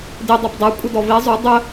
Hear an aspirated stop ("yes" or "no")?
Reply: no